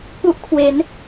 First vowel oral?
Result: yes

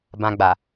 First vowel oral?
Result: no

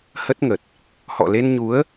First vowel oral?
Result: yes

